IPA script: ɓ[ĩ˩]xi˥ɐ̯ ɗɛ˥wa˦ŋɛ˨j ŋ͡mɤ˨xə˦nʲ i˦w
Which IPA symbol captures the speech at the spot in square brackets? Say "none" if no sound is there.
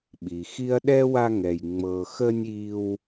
i˩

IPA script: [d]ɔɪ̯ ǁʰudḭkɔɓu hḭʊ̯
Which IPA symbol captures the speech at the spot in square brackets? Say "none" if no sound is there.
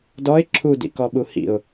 d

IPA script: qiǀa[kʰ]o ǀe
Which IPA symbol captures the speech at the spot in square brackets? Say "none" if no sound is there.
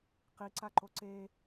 ǃ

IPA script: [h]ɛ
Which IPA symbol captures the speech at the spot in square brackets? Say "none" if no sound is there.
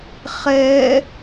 χ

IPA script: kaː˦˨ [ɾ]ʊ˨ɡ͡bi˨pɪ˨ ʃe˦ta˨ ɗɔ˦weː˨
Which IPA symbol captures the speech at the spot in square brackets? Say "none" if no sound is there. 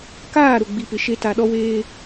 ɾ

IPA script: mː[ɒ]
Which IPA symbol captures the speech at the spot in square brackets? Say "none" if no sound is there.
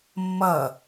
ʌ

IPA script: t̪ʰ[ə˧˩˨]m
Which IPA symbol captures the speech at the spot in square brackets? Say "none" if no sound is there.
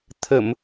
ə˧˩˨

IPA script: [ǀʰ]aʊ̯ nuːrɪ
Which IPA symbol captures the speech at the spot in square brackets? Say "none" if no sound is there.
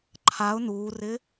ǃʰ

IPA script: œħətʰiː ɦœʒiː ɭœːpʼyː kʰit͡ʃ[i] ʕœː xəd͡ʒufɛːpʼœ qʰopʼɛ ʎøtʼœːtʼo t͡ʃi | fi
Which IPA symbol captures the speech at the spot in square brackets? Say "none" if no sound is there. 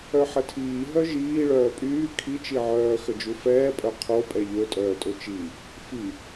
i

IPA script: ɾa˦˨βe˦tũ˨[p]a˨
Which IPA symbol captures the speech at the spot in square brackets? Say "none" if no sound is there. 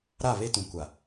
kʷ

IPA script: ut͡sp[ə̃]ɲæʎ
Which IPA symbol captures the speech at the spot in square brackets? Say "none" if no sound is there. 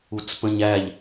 ə̃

